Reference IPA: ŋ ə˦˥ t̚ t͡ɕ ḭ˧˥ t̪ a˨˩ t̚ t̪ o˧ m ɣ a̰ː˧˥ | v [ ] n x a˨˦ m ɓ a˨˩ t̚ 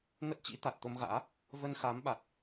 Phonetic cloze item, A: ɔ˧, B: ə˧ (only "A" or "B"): B